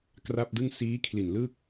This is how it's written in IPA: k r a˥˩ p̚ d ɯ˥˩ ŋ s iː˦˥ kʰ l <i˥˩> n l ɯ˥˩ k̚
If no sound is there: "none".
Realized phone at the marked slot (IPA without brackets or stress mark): i˨˩